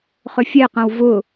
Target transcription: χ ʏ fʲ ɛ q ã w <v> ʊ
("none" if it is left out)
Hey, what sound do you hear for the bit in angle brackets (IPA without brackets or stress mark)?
v